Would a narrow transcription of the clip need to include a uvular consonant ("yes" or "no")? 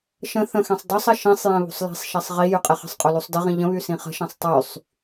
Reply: yes